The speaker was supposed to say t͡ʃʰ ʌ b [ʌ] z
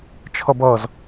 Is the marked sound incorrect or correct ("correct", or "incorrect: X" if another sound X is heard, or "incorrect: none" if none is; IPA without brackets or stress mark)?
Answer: correct